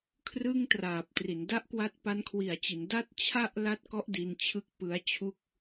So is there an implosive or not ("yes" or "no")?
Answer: no